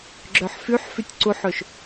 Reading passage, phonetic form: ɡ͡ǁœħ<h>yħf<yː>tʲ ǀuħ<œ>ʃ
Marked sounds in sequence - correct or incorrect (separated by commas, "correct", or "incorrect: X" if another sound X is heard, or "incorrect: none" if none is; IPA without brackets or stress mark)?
incorrect: f, incorrect: y, incorrect: ɵ